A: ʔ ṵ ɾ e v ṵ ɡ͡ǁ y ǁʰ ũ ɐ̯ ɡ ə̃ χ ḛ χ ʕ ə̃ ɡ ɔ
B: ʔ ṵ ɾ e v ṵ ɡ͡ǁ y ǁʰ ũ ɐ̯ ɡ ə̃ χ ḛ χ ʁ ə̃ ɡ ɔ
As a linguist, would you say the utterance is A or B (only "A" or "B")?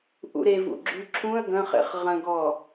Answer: B